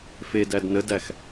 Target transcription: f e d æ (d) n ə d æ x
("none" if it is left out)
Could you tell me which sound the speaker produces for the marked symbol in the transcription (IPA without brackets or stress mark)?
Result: d